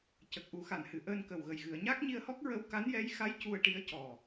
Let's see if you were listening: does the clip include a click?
no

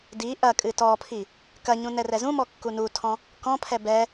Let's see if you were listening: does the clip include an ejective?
yes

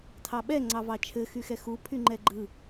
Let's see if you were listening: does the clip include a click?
yes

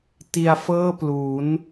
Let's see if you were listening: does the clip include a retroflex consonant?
no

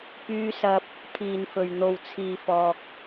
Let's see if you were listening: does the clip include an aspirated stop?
yes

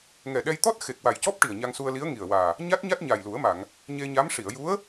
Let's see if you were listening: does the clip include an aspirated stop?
no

